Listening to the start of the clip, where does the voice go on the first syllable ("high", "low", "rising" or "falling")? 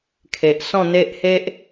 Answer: low